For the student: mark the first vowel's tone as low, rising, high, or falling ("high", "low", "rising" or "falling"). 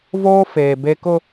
high